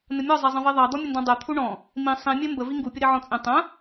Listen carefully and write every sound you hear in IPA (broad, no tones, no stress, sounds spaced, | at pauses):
n ə mʲ ɔ zˤ ɛ zˤ ə̃ v i ðˤ ɑ d̪ ɔ mʲ ə n d ɔ̃ dˤ ɛ t̪ʰ u ɳ ɔ̃ | m ĩ sˤ ĩ mʲ ɛ m b ə v i ŋ ɡ u pʲ ə ɾ i ʕ ɔ̃ t͡sʼ ĩ tˤ ə̃